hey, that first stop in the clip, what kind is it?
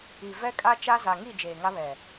ejective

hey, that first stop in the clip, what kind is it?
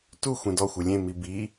plain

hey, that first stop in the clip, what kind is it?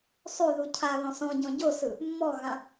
aspirated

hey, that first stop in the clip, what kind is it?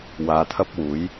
aspirated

